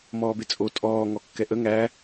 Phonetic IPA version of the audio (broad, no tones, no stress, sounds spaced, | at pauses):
m ɔː b e t͡sʼ o tʼ ɔː ŋ ɔ kː ɛ ʔ ə ŋ æ